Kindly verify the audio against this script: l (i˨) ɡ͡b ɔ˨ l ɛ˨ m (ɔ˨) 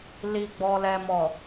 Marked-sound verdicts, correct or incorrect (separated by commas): correct, correct